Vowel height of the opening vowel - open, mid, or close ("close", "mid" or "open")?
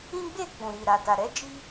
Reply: close